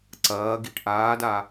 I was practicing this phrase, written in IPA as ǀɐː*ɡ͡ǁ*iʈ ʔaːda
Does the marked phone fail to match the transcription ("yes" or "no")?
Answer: yes